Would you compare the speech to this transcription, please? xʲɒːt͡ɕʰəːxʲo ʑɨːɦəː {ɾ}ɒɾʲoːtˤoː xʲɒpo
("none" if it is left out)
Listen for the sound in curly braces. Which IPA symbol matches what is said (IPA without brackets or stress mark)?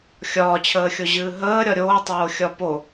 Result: ɾʲ